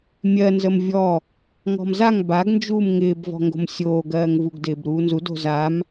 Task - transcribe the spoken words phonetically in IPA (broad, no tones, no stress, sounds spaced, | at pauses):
mʲ ɜ n z ə m vʲ ɔ | ŋ ɔ̤ m z a ŋ b a ɡ n d͡ʒ uː m ŋ ɪː b v ɔ̤ ŋ ɡ o̤ m sʲ oː ɡ ɜː ŋ v u ɡ d ɪː b ɾ uː n z u d o̤ z a m